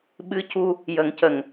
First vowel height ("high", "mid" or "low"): high